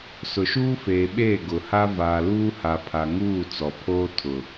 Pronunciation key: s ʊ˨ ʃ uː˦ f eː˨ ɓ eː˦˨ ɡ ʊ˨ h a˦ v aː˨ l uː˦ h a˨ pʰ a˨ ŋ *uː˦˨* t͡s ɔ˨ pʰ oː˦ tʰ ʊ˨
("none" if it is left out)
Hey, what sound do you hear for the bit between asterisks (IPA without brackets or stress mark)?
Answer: uː˦˨